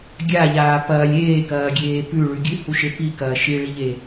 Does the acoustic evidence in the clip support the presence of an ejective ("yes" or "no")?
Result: no